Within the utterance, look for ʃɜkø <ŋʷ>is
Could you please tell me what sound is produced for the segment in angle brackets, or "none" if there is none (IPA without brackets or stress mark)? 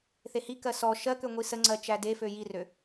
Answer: ŋʷ